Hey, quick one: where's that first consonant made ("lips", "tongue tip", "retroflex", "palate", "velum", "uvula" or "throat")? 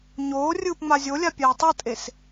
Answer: palate